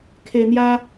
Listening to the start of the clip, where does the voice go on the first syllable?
low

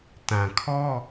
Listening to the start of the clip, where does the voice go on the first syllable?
low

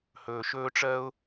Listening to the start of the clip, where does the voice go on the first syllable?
low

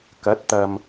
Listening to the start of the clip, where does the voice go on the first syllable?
rising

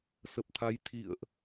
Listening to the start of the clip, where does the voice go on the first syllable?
low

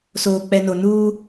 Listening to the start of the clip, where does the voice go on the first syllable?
low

